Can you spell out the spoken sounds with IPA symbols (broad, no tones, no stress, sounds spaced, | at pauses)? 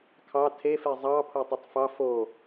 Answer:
kʰ ɑ tʰ e f e zˤ ɑ pʰ o tˤ o tˤ f ɑ f o